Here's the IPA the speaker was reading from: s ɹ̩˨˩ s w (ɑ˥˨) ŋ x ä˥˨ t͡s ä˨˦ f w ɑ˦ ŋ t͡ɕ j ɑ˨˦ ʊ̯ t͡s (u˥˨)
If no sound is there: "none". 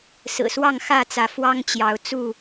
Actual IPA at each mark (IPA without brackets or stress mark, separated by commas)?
ɑ˥˨, u˥˨